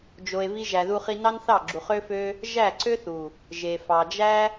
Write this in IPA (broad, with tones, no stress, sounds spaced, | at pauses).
d͡ʒ o˧ e̯ v i˦ ʒ æ˧ ð u˦ χ i˦ n ɑ˦ n θ ɑ˦˨ ɡ͡ǁ u˨ χ ø˦ f ø˦ | ʒ æ˦˨ ǀ ø˦ θ u˨ | ʒ e˨ f ɑ˨ d͡ʒ æ˦